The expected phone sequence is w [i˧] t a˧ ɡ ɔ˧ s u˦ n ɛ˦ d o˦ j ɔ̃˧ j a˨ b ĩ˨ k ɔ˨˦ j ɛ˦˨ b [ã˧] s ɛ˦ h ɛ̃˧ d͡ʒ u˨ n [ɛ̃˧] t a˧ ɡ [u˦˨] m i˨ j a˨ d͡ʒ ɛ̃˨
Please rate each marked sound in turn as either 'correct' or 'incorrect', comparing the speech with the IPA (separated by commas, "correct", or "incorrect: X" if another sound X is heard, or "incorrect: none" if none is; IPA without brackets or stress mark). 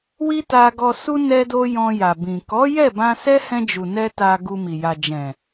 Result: incorrect: i˦, correct, incorrect: ɛ˧, incorrect: u˧